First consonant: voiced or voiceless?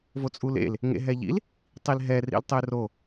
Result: voiced